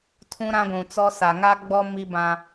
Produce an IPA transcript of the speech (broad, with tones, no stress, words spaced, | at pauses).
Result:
tʰũ˦ɾã˦ɡʷũ˨t͡sɔ˦ sa˨ŋa˦ɡ͡bɔ˦ mi˦bã˦